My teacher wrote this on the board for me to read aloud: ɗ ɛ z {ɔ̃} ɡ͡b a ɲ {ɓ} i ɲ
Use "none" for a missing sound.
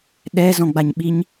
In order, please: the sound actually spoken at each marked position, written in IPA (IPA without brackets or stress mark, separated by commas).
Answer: ɔ̃, ɓ